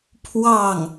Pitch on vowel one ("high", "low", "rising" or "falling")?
falling